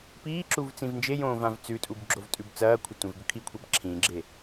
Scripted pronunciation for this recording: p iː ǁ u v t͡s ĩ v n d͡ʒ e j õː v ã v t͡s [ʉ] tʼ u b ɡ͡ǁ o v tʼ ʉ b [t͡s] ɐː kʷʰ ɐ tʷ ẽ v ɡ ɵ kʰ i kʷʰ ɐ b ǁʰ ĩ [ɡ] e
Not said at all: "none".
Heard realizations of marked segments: ʉ, t͡s, ɡ͡ǁ

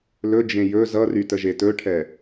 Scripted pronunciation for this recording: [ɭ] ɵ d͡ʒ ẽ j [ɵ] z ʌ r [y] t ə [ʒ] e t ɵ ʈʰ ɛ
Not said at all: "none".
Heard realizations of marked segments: l, ɵ, y, ʒ

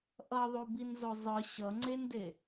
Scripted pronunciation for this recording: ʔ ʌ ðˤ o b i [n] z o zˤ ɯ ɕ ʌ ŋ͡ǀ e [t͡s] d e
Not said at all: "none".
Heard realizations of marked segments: n, n

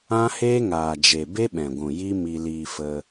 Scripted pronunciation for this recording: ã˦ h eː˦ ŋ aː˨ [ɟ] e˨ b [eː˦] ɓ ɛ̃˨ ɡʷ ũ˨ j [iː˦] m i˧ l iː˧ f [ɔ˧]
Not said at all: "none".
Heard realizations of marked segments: d͡ʒ, e˦, i˦, ə˧

